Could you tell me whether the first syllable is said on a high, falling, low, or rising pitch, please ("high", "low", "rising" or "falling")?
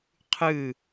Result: falling